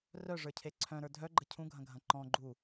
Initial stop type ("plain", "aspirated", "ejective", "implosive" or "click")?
aspirated